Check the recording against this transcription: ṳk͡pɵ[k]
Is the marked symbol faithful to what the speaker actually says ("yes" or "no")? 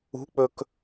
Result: yes